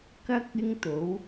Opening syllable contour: high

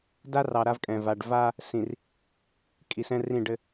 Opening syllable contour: high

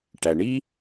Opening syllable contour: low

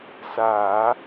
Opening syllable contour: low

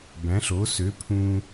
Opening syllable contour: rising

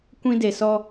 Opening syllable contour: high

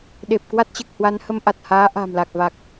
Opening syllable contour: low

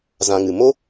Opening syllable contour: low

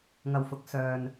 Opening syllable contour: low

